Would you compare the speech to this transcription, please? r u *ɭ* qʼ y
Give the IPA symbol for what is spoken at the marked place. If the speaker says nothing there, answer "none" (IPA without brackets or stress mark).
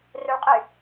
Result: ɭ